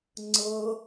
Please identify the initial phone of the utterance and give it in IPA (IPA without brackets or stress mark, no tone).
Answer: ŋ͡ǀ